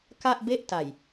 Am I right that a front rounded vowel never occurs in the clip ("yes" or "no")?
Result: yes